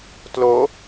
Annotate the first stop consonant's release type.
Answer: plain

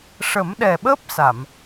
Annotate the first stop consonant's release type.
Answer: implosive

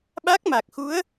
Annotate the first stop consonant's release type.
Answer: implosive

